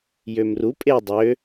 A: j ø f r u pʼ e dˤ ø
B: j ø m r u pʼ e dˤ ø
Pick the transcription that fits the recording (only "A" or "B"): B